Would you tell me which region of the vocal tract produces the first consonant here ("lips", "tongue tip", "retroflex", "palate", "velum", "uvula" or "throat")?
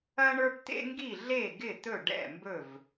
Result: retroflex